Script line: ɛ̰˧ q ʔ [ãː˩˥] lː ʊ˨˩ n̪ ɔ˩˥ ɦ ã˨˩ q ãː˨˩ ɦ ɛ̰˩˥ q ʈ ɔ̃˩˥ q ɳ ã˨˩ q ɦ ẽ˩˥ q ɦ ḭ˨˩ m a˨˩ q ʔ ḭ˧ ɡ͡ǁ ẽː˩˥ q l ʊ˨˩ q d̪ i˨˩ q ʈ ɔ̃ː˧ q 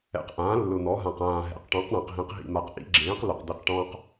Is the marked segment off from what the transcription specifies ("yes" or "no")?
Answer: no